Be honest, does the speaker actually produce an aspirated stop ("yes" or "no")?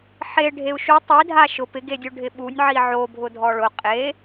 no